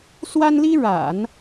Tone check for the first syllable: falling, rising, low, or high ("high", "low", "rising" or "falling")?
high